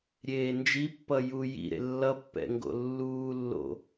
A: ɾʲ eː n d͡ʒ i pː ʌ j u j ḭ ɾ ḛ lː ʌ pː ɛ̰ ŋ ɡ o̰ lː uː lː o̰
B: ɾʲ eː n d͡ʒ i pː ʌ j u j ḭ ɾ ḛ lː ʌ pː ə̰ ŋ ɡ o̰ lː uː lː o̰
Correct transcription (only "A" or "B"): A